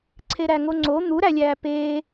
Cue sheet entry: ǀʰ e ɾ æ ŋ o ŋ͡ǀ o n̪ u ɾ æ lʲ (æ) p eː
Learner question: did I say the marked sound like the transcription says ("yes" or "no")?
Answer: no